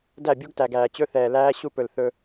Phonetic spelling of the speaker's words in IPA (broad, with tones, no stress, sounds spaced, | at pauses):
d æ˦˨ bʲ u˦ ɡ t æ˨ ɡ æː˨ t͡ɕ ɵ˦ θ ɛː˨ l æː˦ ɕ u˦ p ɵ˨ l θ ɵ˦